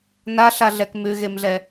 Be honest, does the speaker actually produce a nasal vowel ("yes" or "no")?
no